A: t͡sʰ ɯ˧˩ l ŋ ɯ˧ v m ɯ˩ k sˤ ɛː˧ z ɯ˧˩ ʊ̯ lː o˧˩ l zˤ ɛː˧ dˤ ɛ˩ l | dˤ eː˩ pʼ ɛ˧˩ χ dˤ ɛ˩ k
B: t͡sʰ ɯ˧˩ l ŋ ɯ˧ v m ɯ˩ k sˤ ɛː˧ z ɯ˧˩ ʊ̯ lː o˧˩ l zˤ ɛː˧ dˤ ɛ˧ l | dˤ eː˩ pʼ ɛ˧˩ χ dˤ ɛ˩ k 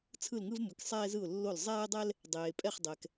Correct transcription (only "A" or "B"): B